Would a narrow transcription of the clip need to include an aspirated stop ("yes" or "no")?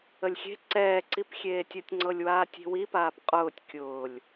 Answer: no